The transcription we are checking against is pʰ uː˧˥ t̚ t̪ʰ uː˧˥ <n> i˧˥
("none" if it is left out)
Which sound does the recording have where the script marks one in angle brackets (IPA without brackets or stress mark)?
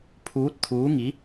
ŋ